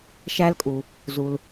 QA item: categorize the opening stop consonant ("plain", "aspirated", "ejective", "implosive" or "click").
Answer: ejective